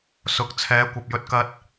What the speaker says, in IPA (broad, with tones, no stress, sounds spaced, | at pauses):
s ʊ˨ k̚ t͡sʰ ɛː˨˥ kʷ ɐ˨ p̚ j ɵ˧ t̚ k ɐ˧ t̚